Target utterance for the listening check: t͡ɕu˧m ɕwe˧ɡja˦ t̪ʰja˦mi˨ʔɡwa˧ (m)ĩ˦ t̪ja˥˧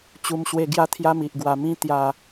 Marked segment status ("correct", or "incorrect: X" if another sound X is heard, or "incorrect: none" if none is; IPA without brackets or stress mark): correct